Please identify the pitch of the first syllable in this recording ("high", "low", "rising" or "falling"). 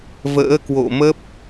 rising